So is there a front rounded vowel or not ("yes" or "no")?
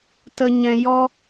no